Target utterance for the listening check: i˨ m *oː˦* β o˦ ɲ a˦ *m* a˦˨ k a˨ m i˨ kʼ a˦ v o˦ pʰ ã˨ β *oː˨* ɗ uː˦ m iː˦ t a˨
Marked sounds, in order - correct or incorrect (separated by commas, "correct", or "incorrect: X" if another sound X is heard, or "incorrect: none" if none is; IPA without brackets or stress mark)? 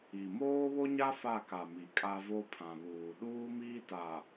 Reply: correct, incorrect: f, incorrect: uː˨